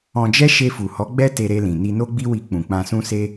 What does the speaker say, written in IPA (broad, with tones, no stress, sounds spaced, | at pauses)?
ɔ̃˧ d͡ʒ ɛ˦ ʃ e˧ f u˨ h ɔ˨˦ ɡ͡b ɛ˦ t e˧ ɾ e˧ l ĩ˨ n i˧ n o˦ ɡ͡b i˦ w i˧ k͡p ũ˨ k͡p ã˧ s ũ˦ s e˦